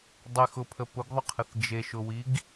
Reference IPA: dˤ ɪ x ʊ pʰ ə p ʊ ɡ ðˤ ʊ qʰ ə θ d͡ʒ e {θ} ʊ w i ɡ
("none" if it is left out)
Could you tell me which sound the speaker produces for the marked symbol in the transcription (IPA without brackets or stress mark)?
ʃ